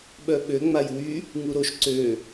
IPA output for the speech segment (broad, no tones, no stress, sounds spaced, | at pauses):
ɓ œ ɓ ø ŋ͡m a j w y | ŋ u ɾ o ʃ ǀ ø